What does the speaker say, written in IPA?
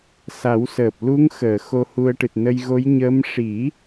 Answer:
s a˨˩˦ w s əː˨˩ p̚ l u˧˥ ŋ x əː˨˩˨ x o˧ h u˧ ə̯ ʈ ɨ˨˩ t̚ n ə˧ j ɣ o˧˥ j ɲ ə˧˥ m ʂ i˨˩˦

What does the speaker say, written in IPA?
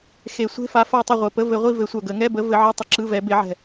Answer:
x e˨˩˦ sʷ e̤˧˥˧ f a˨˥ f a˦˨ tˤ i˦˨ ʁʷ ɘ˨˩ p ə˧˥˧ v ɘ˨˩˦ ʁʷ i˦˨ v ɘ˨˩˦ sʷ œ˨˩ ɡ ə˨˩˦ ŋ ɛ˧˥˧ b ə˨˥ v ɘ˨˥ ʕ ɘ˧˥˧ tˤ ə˦˨ ǁ ɯ˧˥˧ v ɛ˨˥ b e˨˩˦ ʕ ɛ̤˨˩

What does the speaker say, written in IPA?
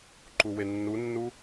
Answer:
ǃ u w e nː u nː u

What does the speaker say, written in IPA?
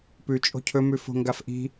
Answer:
p ʉ t͡ʃʼ o̤ cʰ ɵ m ʉ f o̤ ŋ ɡ a f ʔ i̤

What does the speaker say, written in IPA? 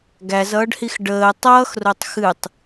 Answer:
ɡ æ z ʌː ɖ h i x ɖ əː tˤ ʌː x r o tˤ x ɨ tˤ

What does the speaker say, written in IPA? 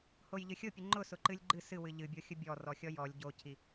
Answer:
h o j ʎ ɨ xʲ ʊ pʲ ɨ ŋ͡ǃ ʊ s ʊ ǃ ɨ lʲ ɡ͡ǃ ɨ s ɨ w ɨ ʎ ɨ bʲ o xʲ ʊ bʲ ɔ r ɔ xʲ ɔ j ɔ lʲ ɟ o cʰ i

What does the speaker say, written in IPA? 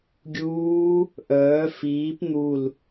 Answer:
ɡʲ uː | ʔ œː f iː p n̪ u l

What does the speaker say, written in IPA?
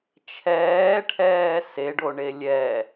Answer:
t͡ʃʰ ɛː ʈʰ ɛː s e ɖ o ɳ e lʲ ɛ

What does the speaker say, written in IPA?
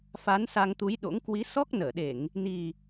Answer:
f a˨˦ n s a˧ ŋ t̪ u˨˦ j ɗ o̰˧˥ ŋ k w i˨˦ s ɔ˦˥ k̚ n əː˧˩ ɗ e˧˩˨ ŋ | n i˨˩

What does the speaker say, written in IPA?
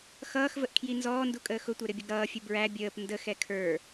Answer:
x ʌː x v ə ʔ kʰ j i n z ɔː n d u kʼ əː x ʊ tʷ ɛ ɾ ɪ bʲ ʌ ɡ ɾ ʌː fʲ ə b ɹ æ bʲ əː p n d ə x ɛ kʰ ə˞

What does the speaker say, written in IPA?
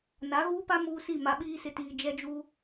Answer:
n a˨˦ ɣ uː˦ p a˦ m uː˦ s i˦˨ m a˨ ɓ iː˦ s ɪ˨ t iː˨ d͡ʒ ɛ˦ d͡ʒ uː˦

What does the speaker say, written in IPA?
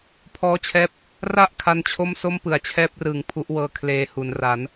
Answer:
pʰ ɔː˦˥ t͡ɕʰ ɛː˦˥ p̚ | r a˥˩ ʔ kʰ a˧ n t͡ɕʰ o˥˩ m s o˥˩ m p ɯ˩˦ a̯ t͡ɕʰ ɛː˦˥ p̚ r ɯː˩˦ ŋ pʰ u˦˥ ʔ w ɤː˧ kʰ l eː˧ h u˩˦ n r a˩˦ n

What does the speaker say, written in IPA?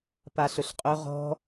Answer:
p a ɬ ɵ ɬ qʼ ɵ ʁ ɔ̤

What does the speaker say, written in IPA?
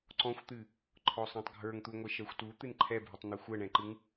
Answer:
ǀ ɔ̃ xʷ t̪ ɨ | ǃʰ ɔ sˤ ɛ̃ tˤ ɡʱ ə˞ ŋ t̪ u ŋʷ ɛ ʃ ɜ xʷ t u t̪ ɨ n ǃʰ ɛ bʱ ɨ tˤ n̪ ɛ xʷ ɜ ɳ ɛ̃ ǃ ɨ ŋ

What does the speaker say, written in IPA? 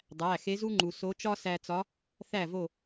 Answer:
dˤ æ˩˧˩ x e˧˥ z u˥ ŋ͡ǃ u˩ s o˧˥ t͡ʃ ɒ˥ s æ˧ t͡s ɒ˧˥ | θ æ˥˨ v o˥˨

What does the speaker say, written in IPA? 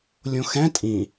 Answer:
lʲ õ x ɛ̃ tʼ ĩ

